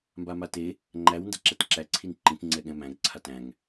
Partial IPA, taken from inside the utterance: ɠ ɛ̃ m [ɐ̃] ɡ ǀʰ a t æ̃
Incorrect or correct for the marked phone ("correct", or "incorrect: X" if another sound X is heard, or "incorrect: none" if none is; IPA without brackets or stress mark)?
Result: incorrect: æ̃